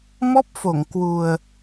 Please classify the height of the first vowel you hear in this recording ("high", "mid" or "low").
mid